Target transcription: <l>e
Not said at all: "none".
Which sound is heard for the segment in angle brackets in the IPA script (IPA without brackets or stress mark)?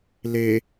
l